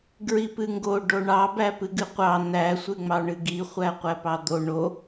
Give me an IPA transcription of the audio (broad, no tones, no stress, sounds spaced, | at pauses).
ɡ ɹ i p ɨ ŋ ɡ o ɖ o ɳ ɑ b æ p ɨ ɡ ɨ qʷ ɑ n̪ æ sʷ ɨ ŋ͡m ɑ ɳ ɨ ɡ i χʷ æ qʷ æ p ɑ d̪ o ɳ o